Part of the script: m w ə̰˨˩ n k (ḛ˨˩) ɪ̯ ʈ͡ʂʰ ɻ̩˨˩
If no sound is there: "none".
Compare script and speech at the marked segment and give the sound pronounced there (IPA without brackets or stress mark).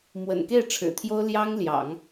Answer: e˥˩